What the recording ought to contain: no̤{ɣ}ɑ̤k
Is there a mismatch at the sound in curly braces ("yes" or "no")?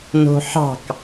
yes